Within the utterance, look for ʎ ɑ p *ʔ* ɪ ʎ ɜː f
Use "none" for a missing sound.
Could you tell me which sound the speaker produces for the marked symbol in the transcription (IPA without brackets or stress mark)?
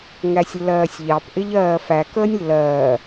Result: ʔ